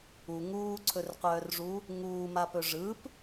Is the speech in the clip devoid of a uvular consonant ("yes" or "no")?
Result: no